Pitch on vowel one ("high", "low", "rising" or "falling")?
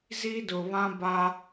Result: high